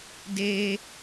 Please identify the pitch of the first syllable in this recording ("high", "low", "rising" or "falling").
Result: high